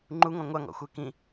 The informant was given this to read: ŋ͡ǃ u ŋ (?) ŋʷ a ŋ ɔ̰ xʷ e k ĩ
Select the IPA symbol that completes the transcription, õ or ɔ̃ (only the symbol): ɔ̃